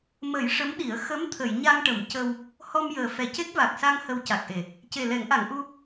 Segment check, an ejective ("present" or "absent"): absent